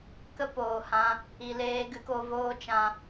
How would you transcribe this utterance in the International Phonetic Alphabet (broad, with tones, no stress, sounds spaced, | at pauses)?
k ə˧ p oː˨ h ã˧ | i˨ l eː˧ ɡ ɨ˧ k o˧ v oː˦ t͡ʃ ã˧